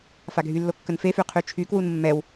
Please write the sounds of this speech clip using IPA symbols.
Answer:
faɡʱylːo kːənfefy qʰyt͡ʃʰykwun mːɛw

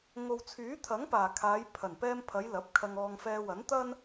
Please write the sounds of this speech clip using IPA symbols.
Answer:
ŋo˨wt͡sʰyː˨˥t̪ʰɐ˨˥ŋpaː˨˩ kʰaː˨˧j pʰɐ˨˩npɛː˧mpʰɐ˨˧j lɐ˨˥p̚kʰɐ˧ŋɔː˧ŋ fɛː˧ wɐ˨˥nt̪ɐ˥n

